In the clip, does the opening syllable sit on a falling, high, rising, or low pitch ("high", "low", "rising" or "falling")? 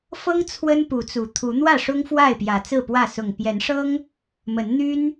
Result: high